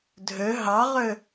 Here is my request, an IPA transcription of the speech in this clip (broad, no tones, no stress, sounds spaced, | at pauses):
dʱ ø ɦ ɑ ʁ ø